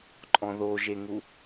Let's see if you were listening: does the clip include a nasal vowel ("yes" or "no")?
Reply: yes